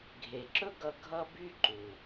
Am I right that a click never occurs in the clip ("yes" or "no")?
no